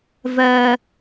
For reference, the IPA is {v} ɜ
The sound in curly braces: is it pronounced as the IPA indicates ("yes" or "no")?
yes